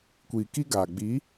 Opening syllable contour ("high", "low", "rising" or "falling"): low